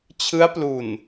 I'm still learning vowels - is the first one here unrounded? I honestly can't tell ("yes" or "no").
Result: yes